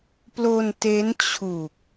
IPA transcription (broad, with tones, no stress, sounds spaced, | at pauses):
p l o˧ n t e˦˥ n t͡ɕʰ u˨˩ k̚